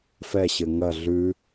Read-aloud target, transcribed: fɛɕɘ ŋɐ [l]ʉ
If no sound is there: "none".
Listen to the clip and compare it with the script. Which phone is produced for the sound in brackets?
ɮ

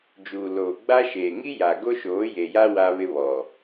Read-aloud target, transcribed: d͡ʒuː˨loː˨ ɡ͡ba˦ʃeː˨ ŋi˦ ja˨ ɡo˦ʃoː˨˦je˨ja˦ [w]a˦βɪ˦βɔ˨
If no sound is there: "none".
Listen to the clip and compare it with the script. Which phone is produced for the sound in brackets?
w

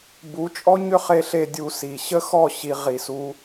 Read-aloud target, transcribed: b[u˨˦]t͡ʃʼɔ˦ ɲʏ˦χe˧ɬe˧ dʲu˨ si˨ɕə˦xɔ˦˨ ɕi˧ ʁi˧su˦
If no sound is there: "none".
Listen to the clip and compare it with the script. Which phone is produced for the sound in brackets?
u˨˦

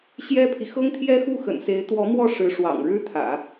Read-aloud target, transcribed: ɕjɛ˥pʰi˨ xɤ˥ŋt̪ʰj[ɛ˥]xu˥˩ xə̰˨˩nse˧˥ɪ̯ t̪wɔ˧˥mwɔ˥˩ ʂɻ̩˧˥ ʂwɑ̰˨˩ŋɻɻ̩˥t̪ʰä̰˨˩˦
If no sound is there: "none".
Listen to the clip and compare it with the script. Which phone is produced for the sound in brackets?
ɛ˥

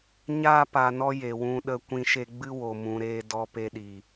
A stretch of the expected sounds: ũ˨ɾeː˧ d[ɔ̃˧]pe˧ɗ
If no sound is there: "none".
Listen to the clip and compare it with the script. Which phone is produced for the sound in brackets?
ɔ˧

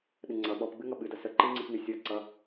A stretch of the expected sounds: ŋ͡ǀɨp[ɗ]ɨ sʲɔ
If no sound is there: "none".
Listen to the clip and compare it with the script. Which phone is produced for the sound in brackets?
n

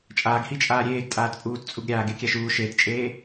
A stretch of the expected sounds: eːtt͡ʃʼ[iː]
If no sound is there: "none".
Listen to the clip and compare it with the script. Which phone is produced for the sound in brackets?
eː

